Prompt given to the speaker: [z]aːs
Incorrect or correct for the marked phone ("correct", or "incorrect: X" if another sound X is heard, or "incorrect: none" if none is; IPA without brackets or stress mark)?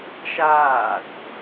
incorrect: ʃ